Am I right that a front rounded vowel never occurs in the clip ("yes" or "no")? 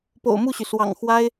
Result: no